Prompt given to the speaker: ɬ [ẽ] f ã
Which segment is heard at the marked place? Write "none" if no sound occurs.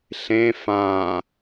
ẽ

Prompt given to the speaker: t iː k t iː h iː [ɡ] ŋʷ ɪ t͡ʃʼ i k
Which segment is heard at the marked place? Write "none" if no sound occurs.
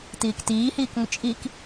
k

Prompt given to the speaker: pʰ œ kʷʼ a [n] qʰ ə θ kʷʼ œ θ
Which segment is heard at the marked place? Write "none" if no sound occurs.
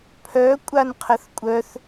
n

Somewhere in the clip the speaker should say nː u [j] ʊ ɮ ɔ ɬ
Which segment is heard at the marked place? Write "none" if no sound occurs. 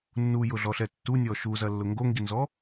j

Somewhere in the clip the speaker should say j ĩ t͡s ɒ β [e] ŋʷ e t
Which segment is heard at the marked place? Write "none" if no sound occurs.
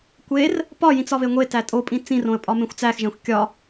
e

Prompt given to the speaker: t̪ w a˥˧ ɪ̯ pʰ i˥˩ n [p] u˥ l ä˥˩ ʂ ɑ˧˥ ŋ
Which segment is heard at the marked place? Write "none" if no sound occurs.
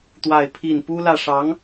p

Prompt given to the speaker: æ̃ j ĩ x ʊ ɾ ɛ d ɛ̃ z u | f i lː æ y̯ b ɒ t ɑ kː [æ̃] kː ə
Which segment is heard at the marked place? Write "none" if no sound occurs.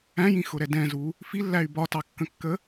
ə̃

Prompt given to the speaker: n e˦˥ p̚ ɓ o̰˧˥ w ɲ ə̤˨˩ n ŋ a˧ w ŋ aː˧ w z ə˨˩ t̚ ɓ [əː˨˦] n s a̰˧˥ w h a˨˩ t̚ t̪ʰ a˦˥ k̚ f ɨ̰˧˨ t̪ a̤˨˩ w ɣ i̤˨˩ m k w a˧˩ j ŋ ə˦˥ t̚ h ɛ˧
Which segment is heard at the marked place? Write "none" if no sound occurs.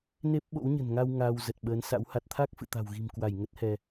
əː˨˦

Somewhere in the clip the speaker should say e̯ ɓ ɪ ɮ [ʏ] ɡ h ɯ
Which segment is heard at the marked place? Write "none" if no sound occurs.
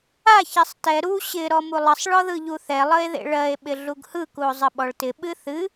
u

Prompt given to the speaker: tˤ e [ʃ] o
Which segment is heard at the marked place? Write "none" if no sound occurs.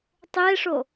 ʂ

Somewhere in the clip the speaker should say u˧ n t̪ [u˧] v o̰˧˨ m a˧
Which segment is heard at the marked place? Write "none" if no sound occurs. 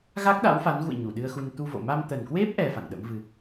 u˧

